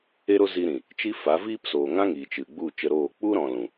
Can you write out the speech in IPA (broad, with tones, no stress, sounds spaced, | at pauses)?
e˦ ɾ o˦ z i˧ ɾ ĩ˨ | t͡ʃ i˦ f a˨˦ v iː˦ p s oː˨ ŋ ã˦ ŋ iː˨ t͡ʃ ɨ˨ ɡ͡b u˦˨ t͡ʃ ə˧ ɾ oː˦˨ k͡p u˦ ɾ ɔ̃˨ l ũ˨